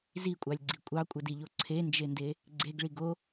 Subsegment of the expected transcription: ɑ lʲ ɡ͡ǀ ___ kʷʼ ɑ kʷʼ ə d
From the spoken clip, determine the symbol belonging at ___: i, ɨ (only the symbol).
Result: i